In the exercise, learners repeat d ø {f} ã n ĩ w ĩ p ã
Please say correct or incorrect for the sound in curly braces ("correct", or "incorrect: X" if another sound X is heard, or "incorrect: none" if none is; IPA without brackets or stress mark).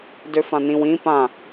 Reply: correct